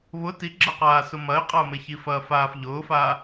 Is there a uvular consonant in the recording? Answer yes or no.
yes